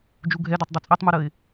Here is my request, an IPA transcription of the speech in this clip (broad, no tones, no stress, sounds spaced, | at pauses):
d͡ʒ u ɡʱ ɛ d ɛ tˤ dˤ u t͡sʼ ɛ tˤ m u ɾ ə ɪ̯